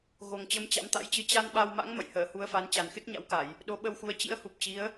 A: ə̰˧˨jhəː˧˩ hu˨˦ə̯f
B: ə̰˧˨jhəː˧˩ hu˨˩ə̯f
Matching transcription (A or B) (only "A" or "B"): A